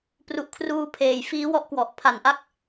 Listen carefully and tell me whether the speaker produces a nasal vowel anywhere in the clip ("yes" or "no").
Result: no